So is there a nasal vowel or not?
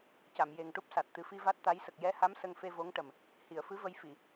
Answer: no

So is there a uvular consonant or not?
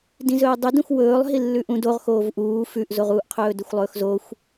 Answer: yes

